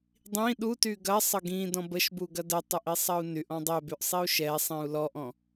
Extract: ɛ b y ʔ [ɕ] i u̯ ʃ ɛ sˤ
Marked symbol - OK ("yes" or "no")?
no